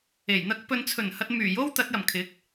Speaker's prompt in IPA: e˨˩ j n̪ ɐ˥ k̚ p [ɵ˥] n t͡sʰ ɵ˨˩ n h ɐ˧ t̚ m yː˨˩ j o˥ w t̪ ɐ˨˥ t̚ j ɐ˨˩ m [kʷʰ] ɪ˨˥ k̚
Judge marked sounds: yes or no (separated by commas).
no, no